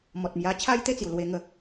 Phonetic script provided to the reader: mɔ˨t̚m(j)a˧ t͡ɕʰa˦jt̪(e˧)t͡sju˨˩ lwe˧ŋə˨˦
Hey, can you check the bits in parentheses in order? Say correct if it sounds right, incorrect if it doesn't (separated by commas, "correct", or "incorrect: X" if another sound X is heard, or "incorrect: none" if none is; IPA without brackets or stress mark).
correct, incorrect: e˥˧